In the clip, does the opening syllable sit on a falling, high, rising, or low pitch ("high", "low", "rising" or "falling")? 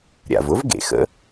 low